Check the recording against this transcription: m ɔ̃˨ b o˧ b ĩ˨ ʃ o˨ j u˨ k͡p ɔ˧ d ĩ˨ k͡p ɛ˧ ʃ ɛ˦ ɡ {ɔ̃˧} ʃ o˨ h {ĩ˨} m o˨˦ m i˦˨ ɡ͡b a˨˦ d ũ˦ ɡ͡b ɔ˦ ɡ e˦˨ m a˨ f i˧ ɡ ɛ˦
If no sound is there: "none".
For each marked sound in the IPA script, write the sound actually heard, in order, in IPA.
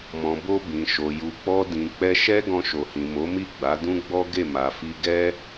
ɔ̃˧, ĩ˨

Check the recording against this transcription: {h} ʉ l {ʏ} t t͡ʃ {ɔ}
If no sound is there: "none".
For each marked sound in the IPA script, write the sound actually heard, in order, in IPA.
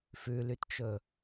f, y, ɵ

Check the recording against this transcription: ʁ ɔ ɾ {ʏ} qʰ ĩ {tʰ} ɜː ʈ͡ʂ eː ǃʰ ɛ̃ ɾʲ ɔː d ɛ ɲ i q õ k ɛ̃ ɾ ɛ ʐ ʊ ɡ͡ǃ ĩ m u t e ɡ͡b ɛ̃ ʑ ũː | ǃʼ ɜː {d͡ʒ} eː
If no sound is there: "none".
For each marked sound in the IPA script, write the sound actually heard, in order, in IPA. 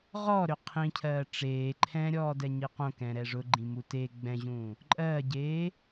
ʏ, cʰ, ɟ

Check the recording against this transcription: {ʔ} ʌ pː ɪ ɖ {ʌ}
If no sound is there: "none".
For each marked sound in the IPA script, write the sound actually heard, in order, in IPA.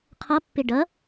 qʰ, ʌ

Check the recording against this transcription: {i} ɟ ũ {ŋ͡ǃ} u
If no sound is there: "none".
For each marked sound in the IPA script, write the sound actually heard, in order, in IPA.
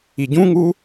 i, ŋ

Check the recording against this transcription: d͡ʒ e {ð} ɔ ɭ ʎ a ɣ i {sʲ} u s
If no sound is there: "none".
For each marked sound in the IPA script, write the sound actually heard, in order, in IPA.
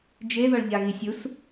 ð, sʲ

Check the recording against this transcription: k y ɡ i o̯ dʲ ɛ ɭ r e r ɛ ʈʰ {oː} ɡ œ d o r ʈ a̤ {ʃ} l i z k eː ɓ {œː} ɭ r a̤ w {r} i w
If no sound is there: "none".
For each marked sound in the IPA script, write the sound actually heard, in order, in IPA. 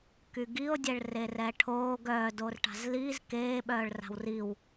oː, z, œː, r

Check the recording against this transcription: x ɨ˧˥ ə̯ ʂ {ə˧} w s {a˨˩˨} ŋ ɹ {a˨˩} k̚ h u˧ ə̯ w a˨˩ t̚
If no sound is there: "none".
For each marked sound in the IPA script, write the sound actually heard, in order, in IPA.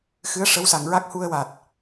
ə˧˥, a˨˩, a˦˥

